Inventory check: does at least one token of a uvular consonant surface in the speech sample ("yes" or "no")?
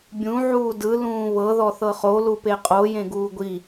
yes